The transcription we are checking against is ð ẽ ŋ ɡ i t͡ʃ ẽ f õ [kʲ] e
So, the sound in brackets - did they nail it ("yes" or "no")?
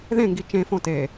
no